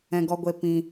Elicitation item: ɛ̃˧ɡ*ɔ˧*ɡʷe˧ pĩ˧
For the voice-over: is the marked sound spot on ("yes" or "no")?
yes